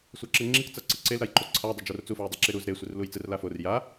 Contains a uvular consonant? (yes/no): no